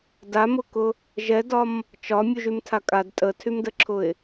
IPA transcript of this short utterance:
damʊkʊ | ʒɛdɒm | t͡ʃɒ mʲuʒymtʰakʼad tʼətʰymdəǁʰʊɪ̯

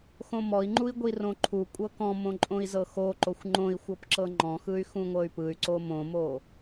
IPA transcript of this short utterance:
xõmɔi̯ŋ͡ǃui̯ ɡʷirõǃʰukʷʼɤ kɔ̃mõ ǃʼõi̯zɤxoǃoxʷ ŋ͡ǃõi̯xʷɤp ǁɤŋ͡ǃɔ̃xɯy̯ xũŋʷɤy̯pɯy̯ǀo mõmo

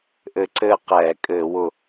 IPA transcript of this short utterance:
ʔɘ˧ǀɘː˥˩ qɛː˧˩˧kʼɘː˧˩˧wʊ˧˩

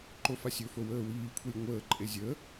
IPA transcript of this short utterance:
ǃofasʲɵfo wəːwiːkʷʰilʲ ŋʷəːǃʼe zʲə

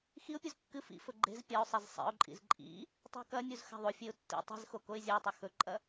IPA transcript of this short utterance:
xiʊ̯pʲuz kːɨ fḭfɵ ɡ͡ǃe̤z pʲɐʊ̯sˤez sˤḛʊ̯ǃʼḭz ǃʼḭ | tˤṳkɐnʲuz xa̤ðˤofʲeʊ̯ tːḭ tˤi̤zxo koɪ̯zʲɐɪ̯tˤɐ xɵǃʼɐ

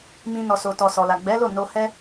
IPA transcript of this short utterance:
mĩ˧ nɔ˨so˨tɔ˨ sɔ˨la˨ɡ͡bɛ˨˦lo˦˨ no˧hɛ˦

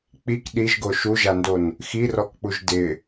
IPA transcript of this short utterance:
k͡pik ɗiʒɡo ʃuʒandon | xirɔkk͡puʒ dɪ

